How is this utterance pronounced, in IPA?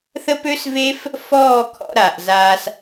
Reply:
θ ə˦ p ø˦ s v e˦ f | f ɔː˦˨ kʰ ɔ̰˧ ɾ a˨ ʔ z a˧ s

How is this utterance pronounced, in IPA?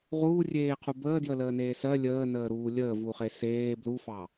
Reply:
ʁ uː rʲ eː qʰ u b əː d j ə l əː n eː s ɜ lʲ əː n əː ɾ uː lʲ əː v u χ e s eː b l u f ɑ

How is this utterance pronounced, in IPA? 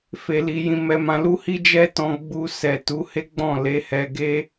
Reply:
f e˨ l i˨ j ĩ˨ m ɛ˨ m ã˨ l u˧ h i˦ d͡ʒ ɛ˦ t ɔ̃˧ ɡ͡b u˧ s ɛ˨ t u˨˦ h e˦ ɡ͡b ɔ̃˦˨ l e˨˦ h ɛ˧ ɡ e˦

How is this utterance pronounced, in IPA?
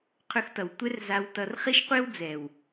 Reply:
qʰ ɵ˧ x t ʌ˨ w tʷ ɛ˦ r z a˧ w t ʌ˧ r χ i˦ ʃ qʷ e˦ w d͡z ɛ˨ w

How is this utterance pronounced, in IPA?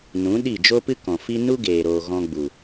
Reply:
n ũ˨˦ ɗ i˦˨ d͡ʒ o˦ p ɨ˦ k ɔ̃˨ f i˦ n u˦ ɡ eː˨ ɾ oː˨ ɣ ɔ̃˧ ɡ͡b u˨

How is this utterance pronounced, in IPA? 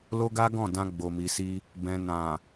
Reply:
l o˦ ɡ a˦ ɡ ɔ̃˦˨ d ã˧ ɡ͡b o˨ m i˨ s i˧ | b ɛ̃˨ n ã˨

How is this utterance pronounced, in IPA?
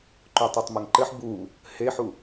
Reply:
ǃ u tˤ ɐ tˤ m ɐ ŋ ǃ ɘ ħ b u | h e ħ u

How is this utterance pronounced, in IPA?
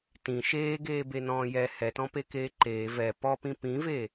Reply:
t ĩ ʃ eː ɡ eː b e n ɔ̃ː j ɛ h ɛ t ɔ̃ p e k eː ǃ eː v ɛ p ɔ p ĩ p ĩ v e

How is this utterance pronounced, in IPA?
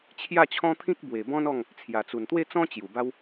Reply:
t͡ɕʰ j a˥˧ t͡ɕʰ ɔ̃˦ t̪ʰ ĩ˦ k̚ b w e˨˩ b ɔ̃˦ n ɔ˥˧ ŋ | t͡sʰ j a˨˩ t͡s u˨˩ n t̪ w e˥˧ t͡s ɔ̃˦ t͡ɕ j u˨˩ b a˦ w

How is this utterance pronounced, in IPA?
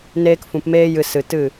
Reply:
n eː˧ k f ũ˨ p m eː˦ j ɨ˧ s ɨ˨ t ɨ˦˨

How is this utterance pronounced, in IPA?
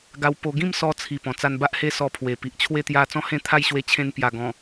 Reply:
ɡ a˧ w p o˧ ɡ ĩ˥˧ m s ɔ˦ t͡sʰ i˨˩ p ɔ̃˨˩ t͡s a˧ n b a˦ ʔ h e˦ s ɔ˧ pʰ w e˨˩ p i˨ ʔ t͡ɕʰ w e˦ t̪ j a˥˧ t͡s ɔ̃˥˧ h ẽ˦ t̪ʰ a˥˧ j ɕ w e˧ t͡ɕʰ ẽ˧ n p j a˨˩ ɡ ɔ̃˨˩

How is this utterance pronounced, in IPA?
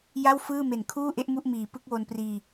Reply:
j a˥˩ w f ɯː˥˩ m e˨˩ n kʰ uː˥˩ ʔ e˦˥ ʔ m u˥˩ ʔ m iː˩˦ p ɯ˦˥ k̚ w o˧ n p r iː˧

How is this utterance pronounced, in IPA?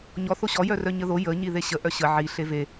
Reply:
ɲ ɔ θ o ɕ ɔ j œ r œ ɲ ə ð o j ə ɲ i ð e ɕ ə ʔ œ ɕ ə ʕ i ɬ e v e

